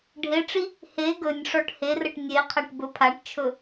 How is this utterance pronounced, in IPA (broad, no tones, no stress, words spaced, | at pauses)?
ɖʱeʈ͡ʂi | he ɡɵnʲʂɔʈ herəʈ nʲeqʰaʈ bɵpʰaʈt͡ʃʰɵ